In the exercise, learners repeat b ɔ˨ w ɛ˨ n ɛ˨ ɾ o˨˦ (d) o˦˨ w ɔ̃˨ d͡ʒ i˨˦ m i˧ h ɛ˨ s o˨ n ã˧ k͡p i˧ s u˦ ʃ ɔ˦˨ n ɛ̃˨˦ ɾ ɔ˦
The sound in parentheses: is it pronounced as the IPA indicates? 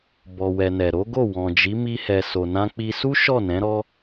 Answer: no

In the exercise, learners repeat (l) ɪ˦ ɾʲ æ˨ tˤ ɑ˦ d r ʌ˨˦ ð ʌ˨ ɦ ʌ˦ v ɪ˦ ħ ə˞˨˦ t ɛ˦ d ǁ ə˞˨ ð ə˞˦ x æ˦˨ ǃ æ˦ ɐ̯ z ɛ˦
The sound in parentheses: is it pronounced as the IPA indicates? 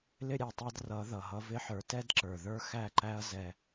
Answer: yes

